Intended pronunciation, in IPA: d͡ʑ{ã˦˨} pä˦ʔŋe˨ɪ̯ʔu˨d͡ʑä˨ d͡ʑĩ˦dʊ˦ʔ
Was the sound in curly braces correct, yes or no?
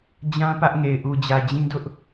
no